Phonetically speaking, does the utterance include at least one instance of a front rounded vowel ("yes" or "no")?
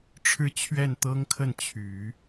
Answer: yes